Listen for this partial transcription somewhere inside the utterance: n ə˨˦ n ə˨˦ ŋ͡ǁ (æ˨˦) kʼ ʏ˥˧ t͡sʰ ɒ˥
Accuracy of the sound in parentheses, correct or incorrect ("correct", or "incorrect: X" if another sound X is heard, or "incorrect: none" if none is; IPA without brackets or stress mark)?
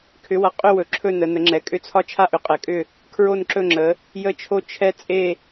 incorrect: ɛ˨˦